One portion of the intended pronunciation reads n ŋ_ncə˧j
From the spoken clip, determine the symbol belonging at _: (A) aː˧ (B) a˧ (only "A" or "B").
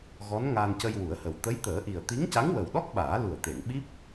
A